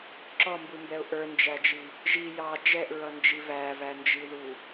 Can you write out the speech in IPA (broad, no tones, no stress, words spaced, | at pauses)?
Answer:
ǁɔmbumbɛʊ̯ ʔə˞nd͡ʒæd͡ʒi | ʒi jɑ d͡ʒɛʔɹʌnd͡ʒi vævænd͡ʒiðu